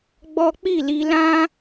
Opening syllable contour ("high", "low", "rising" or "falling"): high